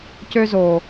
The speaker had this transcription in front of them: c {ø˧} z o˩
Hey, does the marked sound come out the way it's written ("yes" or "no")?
yes